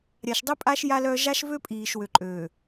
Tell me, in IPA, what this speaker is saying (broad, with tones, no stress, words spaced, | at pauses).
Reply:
ɾʲa˨ʃdˤi˦pʼa˦ʃ ja˦lœ˦ ʒa˦ʃ vø˦ pʼiː˨ʃwø˨ǃʼø˨